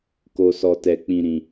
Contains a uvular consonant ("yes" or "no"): no